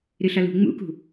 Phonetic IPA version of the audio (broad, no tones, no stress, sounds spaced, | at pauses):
ɾ ɨ ɬ ʌ l ṳ ŋ͡m ṵ k ṳ